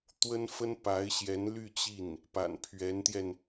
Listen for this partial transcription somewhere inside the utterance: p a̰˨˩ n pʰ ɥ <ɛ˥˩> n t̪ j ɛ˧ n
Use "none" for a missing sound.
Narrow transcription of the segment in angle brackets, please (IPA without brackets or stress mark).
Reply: ɛ˧˥